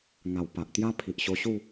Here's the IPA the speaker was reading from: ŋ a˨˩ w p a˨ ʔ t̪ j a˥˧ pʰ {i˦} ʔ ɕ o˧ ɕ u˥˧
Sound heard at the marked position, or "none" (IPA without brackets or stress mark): i˨